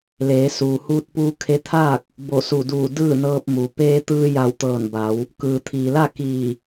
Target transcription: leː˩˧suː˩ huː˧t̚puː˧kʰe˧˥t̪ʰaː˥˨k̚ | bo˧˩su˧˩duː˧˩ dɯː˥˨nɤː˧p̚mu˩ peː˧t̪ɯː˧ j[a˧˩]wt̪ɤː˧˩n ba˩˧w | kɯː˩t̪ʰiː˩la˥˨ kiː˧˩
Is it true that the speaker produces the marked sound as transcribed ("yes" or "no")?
yes